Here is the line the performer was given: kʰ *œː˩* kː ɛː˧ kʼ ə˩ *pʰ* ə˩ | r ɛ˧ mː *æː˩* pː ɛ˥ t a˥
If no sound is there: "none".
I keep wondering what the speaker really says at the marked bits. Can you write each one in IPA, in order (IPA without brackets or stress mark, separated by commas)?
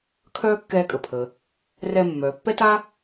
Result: œː˥, pʰ, œː˩